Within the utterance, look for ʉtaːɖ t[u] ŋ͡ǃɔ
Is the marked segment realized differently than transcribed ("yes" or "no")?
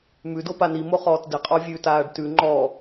yes